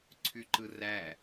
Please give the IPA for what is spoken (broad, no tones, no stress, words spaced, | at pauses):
ǀʰyǃɯræ